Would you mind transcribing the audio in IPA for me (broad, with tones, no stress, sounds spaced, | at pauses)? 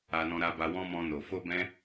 a˧ n ɔ̃˧ ɾ a˧ b a˧ w ɔ̃˦ m ɔ̃˧ n o˨ f o˧ b ɛ̃˧